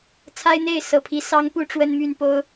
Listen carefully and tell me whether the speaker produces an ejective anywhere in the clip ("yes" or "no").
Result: no